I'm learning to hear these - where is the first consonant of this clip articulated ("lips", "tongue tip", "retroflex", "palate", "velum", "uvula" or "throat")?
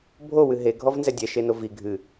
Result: lips